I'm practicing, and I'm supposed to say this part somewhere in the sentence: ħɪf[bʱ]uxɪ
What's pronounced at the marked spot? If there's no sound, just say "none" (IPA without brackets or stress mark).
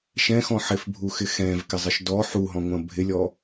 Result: bʱ